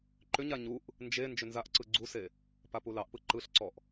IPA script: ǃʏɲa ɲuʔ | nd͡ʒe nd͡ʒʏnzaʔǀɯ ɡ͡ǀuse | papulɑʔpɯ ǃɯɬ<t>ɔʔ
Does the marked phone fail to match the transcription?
yes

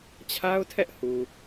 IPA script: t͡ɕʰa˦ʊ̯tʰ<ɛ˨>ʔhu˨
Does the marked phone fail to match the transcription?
yes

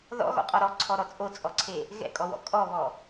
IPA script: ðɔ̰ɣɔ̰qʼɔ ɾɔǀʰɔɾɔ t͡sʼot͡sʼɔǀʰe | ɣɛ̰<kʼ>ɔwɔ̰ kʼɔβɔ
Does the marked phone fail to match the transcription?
no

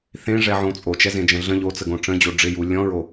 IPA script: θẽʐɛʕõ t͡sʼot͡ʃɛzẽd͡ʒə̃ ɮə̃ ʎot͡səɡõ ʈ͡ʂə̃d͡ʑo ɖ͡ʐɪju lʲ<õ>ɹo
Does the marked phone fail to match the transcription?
yes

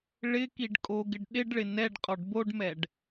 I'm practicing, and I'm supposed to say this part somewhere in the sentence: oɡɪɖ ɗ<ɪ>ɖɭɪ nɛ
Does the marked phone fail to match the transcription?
no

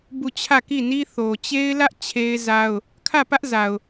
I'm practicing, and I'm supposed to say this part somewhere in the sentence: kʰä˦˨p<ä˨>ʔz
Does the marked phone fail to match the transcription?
yes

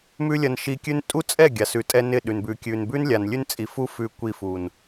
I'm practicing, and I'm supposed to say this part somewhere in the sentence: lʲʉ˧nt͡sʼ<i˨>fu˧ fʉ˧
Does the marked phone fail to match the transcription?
no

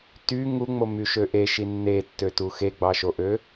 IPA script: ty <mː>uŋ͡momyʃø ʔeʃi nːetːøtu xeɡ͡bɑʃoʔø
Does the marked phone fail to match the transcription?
yes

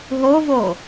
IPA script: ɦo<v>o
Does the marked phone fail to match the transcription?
no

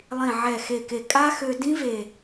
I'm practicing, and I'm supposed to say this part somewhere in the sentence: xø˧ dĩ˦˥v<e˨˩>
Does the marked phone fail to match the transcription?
no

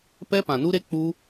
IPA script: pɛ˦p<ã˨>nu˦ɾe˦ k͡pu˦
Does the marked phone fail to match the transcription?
no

